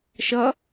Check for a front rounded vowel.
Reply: absent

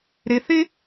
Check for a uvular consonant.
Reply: absent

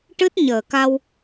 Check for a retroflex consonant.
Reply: present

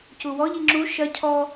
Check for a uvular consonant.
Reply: absent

